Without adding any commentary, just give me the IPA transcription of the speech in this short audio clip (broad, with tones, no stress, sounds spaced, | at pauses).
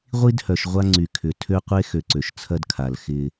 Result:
ʁʷ i˦ d h œ˨ ʃ ʁʷ a˦ ŋ͡ǀ y˨ kʰ ʏ˨ tʰ ø˦ qʷ e˦ x ø˨ ǀ ø˨ ʃ t͡sʰ ɐ˦ d kʰ a˨ l x ɪ˦